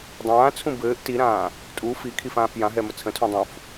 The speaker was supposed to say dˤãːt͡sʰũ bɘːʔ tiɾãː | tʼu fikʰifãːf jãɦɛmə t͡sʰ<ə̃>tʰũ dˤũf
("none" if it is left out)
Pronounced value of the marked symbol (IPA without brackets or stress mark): ə̃